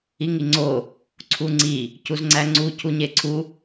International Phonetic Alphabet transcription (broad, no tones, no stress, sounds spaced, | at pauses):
i ŋ i ŋ͡ǀ o | ǀʰ u ŋ͡ǀ i | c u z ŋ͡ǀ æ ŋ͡ǀ u cʰ u ɲ e ǀʰ u